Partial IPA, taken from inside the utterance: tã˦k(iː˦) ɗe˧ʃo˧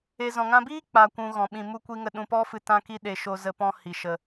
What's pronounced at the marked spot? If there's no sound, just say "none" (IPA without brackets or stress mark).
i˦